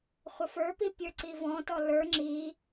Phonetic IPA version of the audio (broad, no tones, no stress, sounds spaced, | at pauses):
χʷ ə f ə˞ p i pʲ ə˞ ǀ i v ɔ̃ t ɔ l ə˞ ŋ͡ǁ i